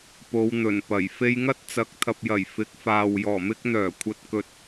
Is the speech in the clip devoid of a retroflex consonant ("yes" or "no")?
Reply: yes